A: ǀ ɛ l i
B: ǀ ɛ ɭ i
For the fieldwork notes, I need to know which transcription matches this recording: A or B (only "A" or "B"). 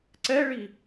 B